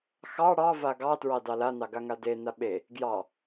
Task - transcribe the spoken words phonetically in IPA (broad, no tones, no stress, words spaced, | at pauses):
xɑ ɽɑva ɡɑtɹɑ dɑlanɑ ɡaŋadena ɓe | ɡjɑ